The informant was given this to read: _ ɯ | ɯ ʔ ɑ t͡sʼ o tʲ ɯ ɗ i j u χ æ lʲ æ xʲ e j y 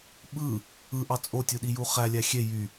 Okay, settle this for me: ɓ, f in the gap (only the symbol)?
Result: ɓ